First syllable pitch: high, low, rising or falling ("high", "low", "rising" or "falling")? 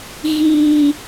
high